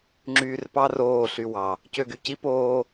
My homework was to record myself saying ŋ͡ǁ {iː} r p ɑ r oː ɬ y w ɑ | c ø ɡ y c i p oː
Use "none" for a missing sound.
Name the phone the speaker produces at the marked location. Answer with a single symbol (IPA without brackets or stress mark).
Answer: yː